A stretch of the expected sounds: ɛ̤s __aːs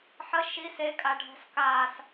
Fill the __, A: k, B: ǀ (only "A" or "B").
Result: A